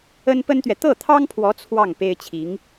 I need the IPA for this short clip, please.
ə˥n pə˥nt̪ɥɛ˨ t̪ɤ˥˩t̪ʰɑ˥ŋpʰwɔ˧˥ t͡sʰwɑ˥˩ŋ pe˥ɪ̯t͡ɕʰi˧˥ŋ

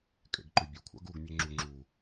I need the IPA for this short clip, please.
kʼḛɡǃʏbʲo kʷʰa̰ɡuɡ mʲeŋ͡ǁu ŋ͡ǁu

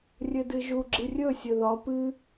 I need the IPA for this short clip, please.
rʲɘdɨʒu ɡ͡ǁɨrʲɵ sʲɘðɒ pɨ

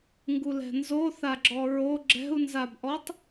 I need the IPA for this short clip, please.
ŋɡulɛ̤nzoθa ɡ͡ǁɔɹo ɡ͡ǁɛ̤u̯nzabʔɔtˤ

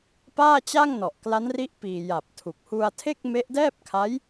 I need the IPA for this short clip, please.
paː˥˩t͡ɕa˥˩ŋ nɔ˨˩ʔkla˦˥nri˦˥ʔpiː˨˩ ja˨˩p̚ tʰu˨˩k̚hu˧a̯tʰe˥˩k̚ me˦˥ʔdɛː˥˩p̚kʰa˦˥j

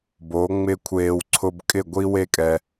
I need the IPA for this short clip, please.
bo˨˦ŋ͡mɪ˦kʷʰeː˧w ǀʰʊ˧bkʼɪ˦˨ ɡʷi˦we˦kʼɛ˧

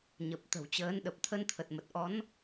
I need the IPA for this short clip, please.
ɲə˨˩p̚ t̪ə̤˨˩wt͡ɕəː˨˦n ɗə˨˩p̚t̪ʰə˧nt̪ʰə˨˩t̚ mə˨˩t̚ʔɔ˨˦n

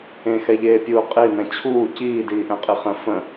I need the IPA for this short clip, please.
ẽxɛʎeːpʲuː qʼinɛ̃ t͡ɕʰuː ciːdiːʔɛ̃qʼi χə̃ fə̃

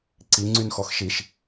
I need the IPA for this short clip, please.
ǀiŋ͡ǀynxɔx ʃiʃ

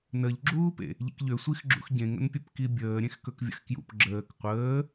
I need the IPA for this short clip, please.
nəʎɡ͡ǁuːpḛ | ʎḭkʎøsʷix ɡ͡ǁṵxɟẽŋə̰npʲɵp kibʲəː ɾʲẽxkɵkvʲə̰xkjṵp ɡ͡ǁəːk qʷəː

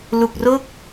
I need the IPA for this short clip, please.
lu˨˩k̚ro˥˩k̚

